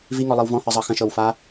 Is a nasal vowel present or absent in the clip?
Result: present